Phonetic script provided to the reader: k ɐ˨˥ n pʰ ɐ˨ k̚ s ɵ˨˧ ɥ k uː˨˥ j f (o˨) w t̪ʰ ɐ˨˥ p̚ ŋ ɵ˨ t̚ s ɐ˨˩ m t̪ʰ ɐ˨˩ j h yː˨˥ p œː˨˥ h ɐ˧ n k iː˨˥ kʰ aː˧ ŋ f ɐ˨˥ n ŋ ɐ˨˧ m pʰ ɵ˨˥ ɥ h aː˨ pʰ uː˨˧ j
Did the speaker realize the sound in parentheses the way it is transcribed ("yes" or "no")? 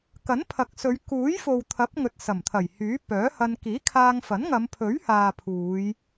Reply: yes